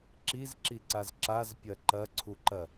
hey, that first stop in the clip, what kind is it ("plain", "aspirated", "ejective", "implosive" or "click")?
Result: click